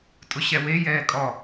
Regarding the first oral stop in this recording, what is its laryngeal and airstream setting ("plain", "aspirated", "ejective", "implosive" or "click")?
ejective